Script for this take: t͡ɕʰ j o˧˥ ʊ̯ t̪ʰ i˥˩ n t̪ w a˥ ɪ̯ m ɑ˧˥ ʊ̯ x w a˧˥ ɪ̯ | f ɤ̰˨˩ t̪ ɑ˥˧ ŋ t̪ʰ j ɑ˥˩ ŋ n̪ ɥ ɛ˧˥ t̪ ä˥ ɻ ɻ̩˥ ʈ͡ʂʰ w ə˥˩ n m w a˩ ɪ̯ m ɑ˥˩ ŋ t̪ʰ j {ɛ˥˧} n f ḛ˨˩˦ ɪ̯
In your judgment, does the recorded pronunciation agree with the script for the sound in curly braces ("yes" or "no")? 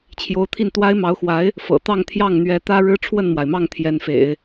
no